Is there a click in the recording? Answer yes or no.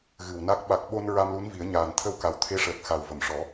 no